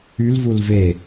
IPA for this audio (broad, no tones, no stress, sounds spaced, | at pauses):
y l v u l v e